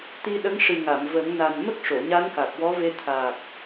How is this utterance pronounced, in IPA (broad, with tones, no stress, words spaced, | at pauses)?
t̪i˧ɗə˧˥ŋʂɨ˨˩ŋa˨˩˨m və˨˩˦ŋna˨˩n mə˦˥k̚ʂo˨˩˨ ɲa˧˥nka˨˩k̚wɔ˧˥ve˧ t̪ʰa˨˩k̚